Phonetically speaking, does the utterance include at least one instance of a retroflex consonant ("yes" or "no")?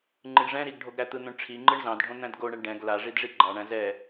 yes